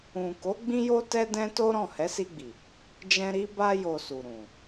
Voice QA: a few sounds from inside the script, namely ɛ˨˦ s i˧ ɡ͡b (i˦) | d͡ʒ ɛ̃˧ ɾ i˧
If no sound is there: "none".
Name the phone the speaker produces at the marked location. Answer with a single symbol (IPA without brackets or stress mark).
i˨